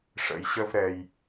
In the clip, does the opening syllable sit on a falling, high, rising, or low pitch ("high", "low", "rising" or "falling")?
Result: low